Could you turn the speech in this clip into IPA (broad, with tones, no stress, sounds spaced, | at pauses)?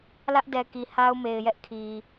l ä˦ ʔ d ɛ˨ k i˨ h a˦ ʊ̯ m e˨ ɪ̯ j ɛ˦ ʔ kʰ i˨